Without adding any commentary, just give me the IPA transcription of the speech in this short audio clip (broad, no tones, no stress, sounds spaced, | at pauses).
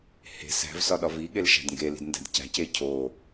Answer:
h e̤ s æ̤ v s ɒ ɗ ɒ v i ɠ e l ʃ æ̤ d ŋ ɡ e l i̤ d n d æ̤ d c æ̤ c e cʰ o